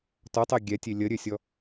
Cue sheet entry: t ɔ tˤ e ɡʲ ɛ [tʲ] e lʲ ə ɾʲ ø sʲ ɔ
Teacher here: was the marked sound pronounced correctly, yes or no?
yes